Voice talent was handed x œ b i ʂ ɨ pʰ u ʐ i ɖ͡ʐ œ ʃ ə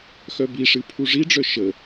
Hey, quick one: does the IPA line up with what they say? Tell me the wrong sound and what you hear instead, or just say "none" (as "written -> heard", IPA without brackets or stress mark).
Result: none